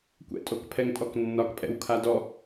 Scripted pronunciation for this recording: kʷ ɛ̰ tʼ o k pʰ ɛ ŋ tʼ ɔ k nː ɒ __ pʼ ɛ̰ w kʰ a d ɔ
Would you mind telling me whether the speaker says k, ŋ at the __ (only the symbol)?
k